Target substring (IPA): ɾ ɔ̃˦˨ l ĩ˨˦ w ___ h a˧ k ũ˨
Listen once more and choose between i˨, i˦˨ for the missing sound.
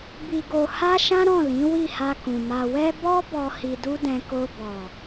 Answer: i˦˨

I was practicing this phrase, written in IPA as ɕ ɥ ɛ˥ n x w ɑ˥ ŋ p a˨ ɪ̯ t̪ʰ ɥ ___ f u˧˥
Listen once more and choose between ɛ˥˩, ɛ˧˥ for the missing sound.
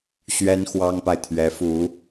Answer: ɛ˧˥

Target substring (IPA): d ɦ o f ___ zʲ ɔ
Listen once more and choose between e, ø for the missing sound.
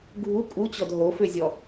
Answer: ø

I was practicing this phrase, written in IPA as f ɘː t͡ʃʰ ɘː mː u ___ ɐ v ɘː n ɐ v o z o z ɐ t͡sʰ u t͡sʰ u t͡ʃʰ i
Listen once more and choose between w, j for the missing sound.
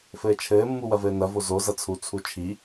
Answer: w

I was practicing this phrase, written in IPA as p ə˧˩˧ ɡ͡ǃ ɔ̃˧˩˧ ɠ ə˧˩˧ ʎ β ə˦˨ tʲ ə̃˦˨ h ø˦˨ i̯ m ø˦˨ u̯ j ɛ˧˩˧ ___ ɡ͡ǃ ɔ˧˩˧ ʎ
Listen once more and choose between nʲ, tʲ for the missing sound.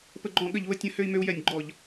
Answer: nʲ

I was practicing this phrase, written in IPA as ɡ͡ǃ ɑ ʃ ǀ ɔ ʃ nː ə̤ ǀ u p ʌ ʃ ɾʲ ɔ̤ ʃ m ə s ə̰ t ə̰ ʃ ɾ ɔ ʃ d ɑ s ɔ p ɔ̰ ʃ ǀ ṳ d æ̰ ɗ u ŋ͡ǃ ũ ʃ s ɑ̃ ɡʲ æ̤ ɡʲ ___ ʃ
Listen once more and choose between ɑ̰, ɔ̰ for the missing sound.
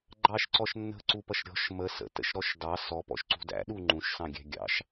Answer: ɑ̰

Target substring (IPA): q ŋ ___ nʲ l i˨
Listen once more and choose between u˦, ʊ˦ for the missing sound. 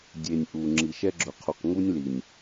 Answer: u˦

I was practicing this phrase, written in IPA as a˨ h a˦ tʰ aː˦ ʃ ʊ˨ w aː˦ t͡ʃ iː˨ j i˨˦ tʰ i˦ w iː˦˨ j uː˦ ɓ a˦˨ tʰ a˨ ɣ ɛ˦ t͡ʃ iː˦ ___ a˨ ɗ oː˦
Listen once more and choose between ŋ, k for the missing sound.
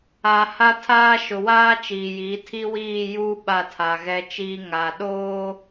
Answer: ŋ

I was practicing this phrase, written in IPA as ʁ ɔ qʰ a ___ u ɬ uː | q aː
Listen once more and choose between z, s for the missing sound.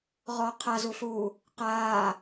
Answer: z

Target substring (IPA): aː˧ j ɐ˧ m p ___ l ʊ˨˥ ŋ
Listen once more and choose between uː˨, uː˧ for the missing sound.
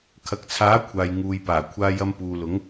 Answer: uː˨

